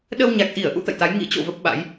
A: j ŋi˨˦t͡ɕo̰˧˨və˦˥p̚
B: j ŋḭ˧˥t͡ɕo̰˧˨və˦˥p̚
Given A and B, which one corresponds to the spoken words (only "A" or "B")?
B